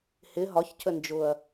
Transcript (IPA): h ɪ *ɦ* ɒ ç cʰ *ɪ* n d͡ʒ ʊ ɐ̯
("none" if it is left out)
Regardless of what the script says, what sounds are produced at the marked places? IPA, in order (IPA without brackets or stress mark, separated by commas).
ɦ, ə